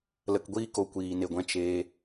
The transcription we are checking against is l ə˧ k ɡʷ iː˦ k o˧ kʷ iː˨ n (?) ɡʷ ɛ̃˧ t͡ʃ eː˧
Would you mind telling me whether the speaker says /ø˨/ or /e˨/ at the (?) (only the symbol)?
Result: e˨